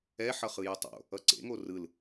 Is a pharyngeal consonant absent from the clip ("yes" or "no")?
no